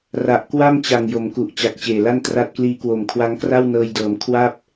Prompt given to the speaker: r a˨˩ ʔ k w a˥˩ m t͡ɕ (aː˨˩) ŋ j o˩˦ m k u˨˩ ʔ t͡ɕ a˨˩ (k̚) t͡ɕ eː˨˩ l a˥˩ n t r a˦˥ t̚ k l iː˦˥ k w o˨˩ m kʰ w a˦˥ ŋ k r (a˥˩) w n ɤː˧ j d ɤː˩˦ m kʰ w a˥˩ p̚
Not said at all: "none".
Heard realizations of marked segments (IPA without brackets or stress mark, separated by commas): a˨˩, k̚, a˥˩